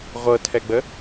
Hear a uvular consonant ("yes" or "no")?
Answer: yes